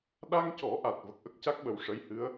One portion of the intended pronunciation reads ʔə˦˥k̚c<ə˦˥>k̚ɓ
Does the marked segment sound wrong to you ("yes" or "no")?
yes